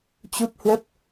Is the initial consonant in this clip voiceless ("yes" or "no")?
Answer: yes